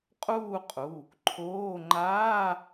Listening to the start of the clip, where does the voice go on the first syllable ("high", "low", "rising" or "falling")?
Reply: falling